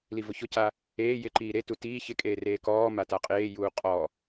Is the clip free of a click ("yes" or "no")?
no